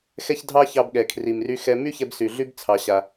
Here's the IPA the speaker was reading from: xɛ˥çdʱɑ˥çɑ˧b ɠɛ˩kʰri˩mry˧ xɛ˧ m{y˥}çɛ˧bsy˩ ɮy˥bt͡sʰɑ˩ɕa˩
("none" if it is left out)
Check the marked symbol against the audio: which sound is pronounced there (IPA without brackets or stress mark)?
y˥